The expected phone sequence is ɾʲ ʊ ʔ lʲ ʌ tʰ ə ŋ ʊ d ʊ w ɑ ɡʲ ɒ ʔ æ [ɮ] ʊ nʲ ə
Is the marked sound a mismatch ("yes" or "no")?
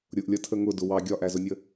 yes